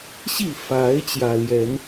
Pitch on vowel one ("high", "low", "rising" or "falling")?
falling